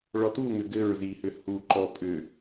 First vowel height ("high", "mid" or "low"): mid